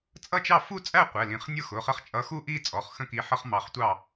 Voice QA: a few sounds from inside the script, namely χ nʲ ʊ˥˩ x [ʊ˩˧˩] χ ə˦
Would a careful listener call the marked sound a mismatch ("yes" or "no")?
no